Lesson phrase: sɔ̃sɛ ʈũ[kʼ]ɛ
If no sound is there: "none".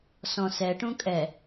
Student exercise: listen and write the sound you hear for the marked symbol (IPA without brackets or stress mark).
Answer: kʼ